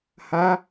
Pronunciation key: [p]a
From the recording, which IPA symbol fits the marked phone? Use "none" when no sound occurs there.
h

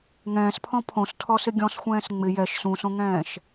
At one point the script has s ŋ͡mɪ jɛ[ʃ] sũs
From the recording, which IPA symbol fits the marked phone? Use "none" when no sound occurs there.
ʃ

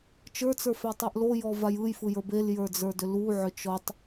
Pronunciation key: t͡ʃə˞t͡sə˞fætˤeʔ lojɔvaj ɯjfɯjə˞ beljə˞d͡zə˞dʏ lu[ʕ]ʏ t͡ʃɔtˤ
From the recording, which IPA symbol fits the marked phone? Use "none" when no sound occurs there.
ʕ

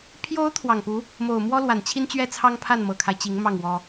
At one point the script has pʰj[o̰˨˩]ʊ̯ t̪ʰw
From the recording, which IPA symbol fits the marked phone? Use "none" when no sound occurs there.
o˧˥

